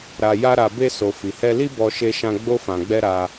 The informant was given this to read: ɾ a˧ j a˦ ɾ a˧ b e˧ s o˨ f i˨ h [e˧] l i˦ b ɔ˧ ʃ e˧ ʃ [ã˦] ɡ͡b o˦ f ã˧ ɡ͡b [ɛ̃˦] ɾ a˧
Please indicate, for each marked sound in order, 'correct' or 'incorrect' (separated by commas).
incorrect, incorrect, incorrect